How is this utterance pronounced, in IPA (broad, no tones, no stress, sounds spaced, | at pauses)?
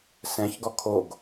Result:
s ɛ̃ ç ɡ ɔ kʰ o ɡ